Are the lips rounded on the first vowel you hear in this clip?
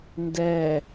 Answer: no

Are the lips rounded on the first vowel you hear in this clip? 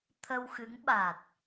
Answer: no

